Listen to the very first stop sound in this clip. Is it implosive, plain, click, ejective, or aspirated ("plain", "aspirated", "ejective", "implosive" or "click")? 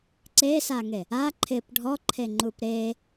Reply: click